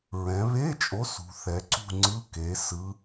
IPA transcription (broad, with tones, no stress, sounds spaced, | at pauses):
ɹ ɛ̃˩˧ β e˧˥˧ t͡ʃʼ o˨˥ s ṳ˩˧ θ ɛ˩˧ ǀ ṳ˥˨ ŋ͡ǀ ɯ˧˥˧ k e˩˧ s ɯ˨˥